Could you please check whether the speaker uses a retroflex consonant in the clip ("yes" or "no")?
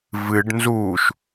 yes